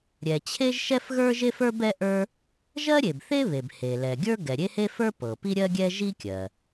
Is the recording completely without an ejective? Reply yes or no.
yes